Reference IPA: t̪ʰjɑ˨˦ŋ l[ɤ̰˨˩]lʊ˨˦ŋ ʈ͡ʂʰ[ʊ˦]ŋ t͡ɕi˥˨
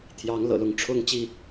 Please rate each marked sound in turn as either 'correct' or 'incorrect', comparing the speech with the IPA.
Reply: correct, correct

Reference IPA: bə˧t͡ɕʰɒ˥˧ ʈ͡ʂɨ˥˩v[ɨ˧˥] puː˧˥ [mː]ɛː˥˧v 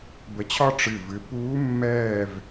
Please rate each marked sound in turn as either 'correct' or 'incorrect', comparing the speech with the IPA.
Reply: correct, correct

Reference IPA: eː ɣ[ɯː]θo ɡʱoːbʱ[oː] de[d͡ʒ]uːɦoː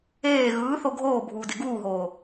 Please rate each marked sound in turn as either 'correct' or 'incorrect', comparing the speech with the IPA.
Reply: correct, incorrect: uː, incorrect: ɡ

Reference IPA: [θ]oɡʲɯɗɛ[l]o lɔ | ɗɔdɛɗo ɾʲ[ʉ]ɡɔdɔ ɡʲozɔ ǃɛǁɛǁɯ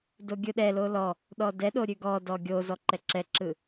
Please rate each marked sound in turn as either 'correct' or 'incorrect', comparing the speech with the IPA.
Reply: incorrect: d, correct, correct

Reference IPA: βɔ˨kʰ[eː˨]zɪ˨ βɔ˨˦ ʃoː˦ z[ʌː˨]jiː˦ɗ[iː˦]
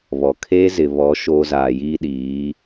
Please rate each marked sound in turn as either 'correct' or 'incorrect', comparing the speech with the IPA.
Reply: incorrect: eː˦, incorrect: aː˨, incorrect: iː˨˦

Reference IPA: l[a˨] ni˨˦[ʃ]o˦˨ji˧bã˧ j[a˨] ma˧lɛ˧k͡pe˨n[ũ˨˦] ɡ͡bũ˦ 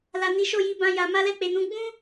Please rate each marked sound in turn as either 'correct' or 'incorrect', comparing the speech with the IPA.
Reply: correct, correct, correct, correct

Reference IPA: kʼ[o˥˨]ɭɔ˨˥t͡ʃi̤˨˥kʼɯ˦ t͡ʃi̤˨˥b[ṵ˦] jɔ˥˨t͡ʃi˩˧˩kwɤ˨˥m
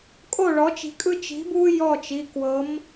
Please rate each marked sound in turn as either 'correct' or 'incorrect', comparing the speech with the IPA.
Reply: correct, incorrect: u˦

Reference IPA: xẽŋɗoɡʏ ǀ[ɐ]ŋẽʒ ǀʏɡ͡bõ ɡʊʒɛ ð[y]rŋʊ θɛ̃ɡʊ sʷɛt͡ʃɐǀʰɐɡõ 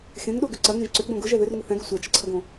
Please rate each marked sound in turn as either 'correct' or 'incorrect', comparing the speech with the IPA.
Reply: correct, incorrect: ʏ

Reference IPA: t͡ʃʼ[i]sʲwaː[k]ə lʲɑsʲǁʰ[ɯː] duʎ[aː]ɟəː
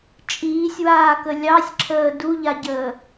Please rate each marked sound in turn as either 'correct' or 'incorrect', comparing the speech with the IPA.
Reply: incorrect: iː, correct, incorrect: əː, incorrect: a

